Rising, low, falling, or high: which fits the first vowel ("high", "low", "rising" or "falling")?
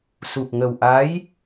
low